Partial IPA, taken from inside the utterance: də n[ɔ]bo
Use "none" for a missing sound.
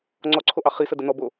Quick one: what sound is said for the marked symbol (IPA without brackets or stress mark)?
ɔ